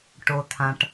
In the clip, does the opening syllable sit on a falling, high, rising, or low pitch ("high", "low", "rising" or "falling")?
low